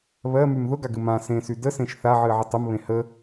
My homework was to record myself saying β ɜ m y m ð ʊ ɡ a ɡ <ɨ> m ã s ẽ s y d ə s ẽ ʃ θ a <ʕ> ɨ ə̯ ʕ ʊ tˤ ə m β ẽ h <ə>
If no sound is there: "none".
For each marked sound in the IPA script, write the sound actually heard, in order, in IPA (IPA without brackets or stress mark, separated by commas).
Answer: ɨ, ʕ, ə